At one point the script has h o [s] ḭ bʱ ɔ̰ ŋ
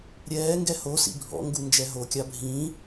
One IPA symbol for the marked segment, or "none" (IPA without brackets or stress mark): s